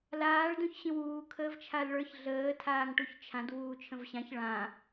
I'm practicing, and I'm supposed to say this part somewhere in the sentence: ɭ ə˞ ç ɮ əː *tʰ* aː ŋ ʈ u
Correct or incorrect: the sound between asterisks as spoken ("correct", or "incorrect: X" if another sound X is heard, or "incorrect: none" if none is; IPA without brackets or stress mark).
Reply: correct